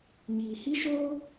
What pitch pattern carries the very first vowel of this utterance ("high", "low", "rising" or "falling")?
low